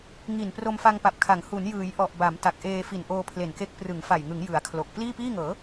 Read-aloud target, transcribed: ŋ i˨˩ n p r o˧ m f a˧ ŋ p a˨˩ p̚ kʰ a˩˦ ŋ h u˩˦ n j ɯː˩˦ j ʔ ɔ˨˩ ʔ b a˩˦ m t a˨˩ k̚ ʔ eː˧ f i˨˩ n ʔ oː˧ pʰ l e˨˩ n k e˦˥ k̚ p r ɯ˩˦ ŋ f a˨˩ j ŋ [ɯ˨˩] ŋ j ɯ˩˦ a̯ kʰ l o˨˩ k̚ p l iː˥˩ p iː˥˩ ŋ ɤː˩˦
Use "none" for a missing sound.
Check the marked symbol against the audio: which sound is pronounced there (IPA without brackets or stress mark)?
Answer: ɯ˩˦